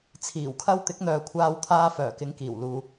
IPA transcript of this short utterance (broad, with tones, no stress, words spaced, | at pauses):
t͡sʰiː˨˩wkʰɐ˥w t̪ɪ˨˥k̚n̪œː˨kʷʰaː˧wt̪ʰaː˧ fœː˨˩kɪ˨˥ŋkiː˨˩w luː˨